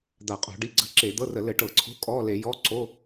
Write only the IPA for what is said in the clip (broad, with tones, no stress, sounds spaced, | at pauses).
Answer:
d̪ a˧˩˧ qʼ o̤˧˩˧ ɖ i˧˥˧ ɡ͡ǀ ə̤˧˥˧ ǁ e˧˩˧ d̪ ɤ˧˥˧ r ə˧˩˧ l ɘ˧˩˧ ʈ ɤ˧˩˧ ǀʰ o̤˧˥˧ kʼ ɔ˧˥˧ l e˧˩˧ j ɔ˧˥˧ ǀ o˧˥˧